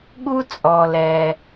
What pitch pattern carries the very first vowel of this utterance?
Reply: high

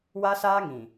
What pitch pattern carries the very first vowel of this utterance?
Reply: high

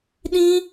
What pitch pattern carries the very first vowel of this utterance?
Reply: high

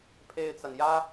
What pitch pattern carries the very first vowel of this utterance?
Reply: high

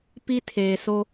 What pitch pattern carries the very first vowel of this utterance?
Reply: high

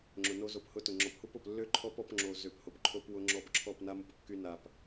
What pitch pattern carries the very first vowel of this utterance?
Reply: low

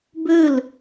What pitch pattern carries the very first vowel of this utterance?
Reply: falling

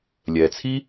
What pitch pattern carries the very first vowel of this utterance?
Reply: low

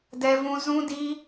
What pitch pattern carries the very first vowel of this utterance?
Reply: high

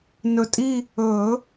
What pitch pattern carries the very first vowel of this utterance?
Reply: low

